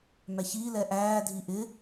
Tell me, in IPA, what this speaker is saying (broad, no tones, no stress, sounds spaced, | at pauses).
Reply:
m æ ç iː l ɛ ʔ æː dʱ i ʔ ɪ